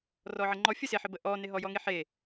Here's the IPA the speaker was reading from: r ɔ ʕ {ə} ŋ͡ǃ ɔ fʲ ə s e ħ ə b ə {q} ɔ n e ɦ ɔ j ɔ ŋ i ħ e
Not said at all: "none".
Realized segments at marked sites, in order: ə, ʔ

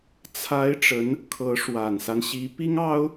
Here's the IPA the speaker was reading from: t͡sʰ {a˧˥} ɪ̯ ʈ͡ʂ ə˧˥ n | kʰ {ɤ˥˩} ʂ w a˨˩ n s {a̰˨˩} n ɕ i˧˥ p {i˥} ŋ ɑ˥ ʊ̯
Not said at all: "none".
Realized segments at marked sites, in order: a˧˥, ɤ˧˥, a˦, i˥

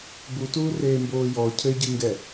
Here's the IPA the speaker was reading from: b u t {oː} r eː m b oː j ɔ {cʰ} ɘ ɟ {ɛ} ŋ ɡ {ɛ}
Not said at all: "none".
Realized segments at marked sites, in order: uː, cʰ, ɨ, ɛ

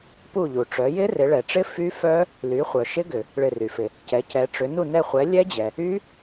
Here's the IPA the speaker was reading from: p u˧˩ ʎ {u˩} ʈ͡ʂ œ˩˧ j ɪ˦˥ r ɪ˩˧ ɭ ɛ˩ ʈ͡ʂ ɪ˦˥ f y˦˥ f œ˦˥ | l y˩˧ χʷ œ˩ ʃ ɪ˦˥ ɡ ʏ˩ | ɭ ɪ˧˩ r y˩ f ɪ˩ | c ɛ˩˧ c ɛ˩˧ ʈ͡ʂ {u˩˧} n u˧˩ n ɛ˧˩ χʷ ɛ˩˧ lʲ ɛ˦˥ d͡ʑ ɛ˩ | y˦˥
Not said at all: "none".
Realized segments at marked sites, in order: u˩, ʏ˩˧

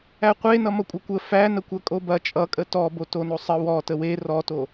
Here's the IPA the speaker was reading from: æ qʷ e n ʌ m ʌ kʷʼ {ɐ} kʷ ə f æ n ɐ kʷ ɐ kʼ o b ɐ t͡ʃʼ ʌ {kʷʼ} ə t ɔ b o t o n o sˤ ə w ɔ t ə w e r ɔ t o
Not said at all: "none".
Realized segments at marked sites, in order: ɐ, kʼ

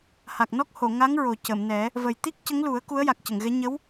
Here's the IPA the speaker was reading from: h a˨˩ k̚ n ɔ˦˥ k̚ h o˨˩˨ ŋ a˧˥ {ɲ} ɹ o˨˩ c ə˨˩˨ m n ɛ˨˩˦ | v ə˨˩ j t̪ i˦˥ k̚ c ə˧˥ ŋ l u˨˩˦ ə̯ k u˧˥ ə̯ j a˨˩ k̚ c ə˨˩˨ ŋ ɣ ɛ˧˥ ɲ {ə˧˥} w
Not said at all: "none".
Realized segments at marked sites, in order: ŋ, ə˧˥

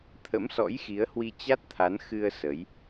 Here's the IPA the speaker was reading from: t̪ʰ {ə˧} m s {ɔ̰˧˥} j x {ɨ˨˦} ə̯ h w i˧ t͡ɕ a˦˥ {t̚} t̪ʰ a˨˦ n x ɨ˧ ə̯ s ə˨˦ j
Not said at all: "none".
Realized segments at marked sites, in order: ə̰˧˥, ɔ̰˧˥, i˨˦, t̚

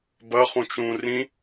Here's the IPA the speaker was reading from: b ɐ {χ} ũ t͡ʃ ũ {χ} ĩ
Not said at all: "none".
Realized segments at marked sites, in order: χ, r

